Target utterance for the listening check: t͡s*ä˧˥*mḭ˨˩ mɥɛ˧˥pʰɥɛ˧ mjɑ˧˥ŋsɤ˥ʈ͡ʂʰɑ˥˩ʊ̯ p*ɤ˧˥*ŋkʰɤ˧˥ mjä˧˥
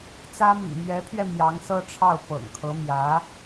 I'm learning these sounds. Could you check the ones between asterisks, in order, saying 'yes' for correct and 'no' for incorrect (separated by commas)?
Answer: no, no